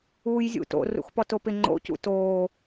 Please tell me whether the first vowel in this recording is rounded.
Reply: yes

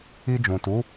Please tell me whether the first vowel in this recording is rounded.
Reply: no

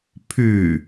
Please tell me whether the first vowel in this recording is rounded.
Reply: yes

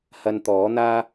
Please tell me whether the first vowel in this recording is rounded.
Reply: no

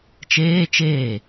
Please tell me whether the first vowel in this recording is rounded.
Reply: no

